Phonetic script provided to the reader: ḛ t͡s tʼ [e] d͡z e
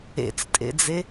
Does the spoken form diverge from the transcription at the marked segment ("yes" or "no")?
yes